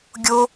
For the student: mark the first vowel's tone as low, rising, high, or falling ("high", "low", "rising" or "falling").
high